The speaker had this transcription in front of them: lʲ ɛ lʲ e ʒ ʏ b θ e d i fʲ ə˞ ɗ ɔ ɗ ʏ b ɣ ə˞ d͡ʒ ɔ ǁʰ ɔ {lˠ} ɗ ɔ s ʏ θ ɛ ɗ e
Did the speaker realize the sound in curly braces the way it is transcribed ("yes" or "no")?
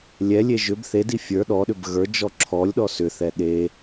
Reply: no